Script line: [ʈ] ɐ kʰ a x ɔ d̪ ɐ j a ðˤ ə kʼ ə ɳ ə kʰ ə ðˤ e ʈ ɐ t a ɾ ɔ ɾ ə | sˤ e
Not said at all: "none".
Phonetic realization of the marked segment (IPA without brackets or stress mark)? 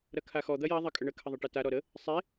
ɾ